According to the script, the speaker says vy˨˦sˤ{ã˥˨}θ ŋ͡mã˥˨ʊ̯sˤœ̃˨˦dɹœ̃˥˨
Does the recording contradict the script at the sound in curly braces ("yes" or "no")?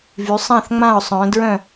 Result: no